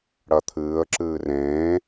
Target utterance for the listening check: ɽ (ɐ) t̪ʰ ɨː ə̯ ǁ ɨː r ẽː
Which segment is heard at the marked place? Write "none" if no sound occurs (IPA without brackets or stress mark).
ɐ